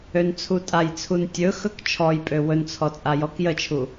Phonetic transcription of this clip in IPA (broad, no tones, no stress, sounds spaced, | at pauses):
ø n t͡sʰ u tʼ a j t͡sʰ u n tʲ ɵ x ɵ k t͡ʃʰ ɔ j pʼ ø w ɵ n t͡sʰ ɔ t͡sʼ a j ɔ k j ə t͡ʃʰ u